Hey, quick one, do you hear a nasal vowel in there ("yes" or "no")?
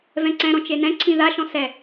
yes